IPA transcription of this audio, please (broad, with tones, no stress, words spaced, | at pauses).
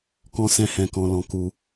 kɔ̃˦sɛ̃˦ hɛ̃˧kɔ̃˧lɔ̃˧ ku˧